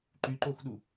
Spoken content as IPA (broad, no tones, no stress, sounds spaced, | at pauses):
ǃ y ǃ o x ɗ u